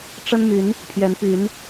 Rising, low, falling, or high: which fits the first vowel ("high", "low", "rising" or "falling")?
high